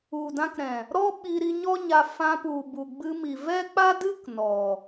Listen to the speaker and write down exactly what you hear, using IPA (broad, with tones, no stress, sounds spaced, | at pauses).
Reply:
u˨ d ã˧ k ɾ ɛ̃˨ | ɾ ɔ˦ ɓ i˧ ɾ i˧ ɲ ɔ˦ ɲ a˧ f ã˧ p u˨ b u˨ ɡ͡b ɨ˧ m i˨ v ɛ˦ k͡p a˦ d ɨ˦ k n ɔ˨